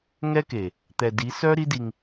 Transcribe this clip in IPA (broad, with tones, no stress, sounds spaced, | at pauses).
ŋ ɛ˦ k e˨ | t̪ ɛ˨ d i˨˦ s œ˦ ɾ i˦ d i˧ ŋ